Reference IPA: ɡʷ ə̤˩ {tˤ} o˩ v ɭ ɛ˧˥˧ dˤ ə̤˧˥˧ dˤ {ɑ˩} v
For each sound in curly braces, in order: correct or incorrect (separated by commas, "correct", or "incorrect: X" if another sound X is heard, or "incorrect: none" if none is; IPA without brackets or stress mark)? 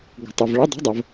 correct, incorrect: ə˩